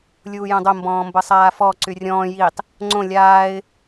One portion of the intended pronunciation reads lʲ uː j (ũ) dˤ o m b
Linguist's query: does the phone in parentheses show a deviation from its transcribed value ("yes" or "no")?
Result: yes